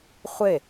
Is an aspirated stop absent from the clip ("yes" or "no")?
yes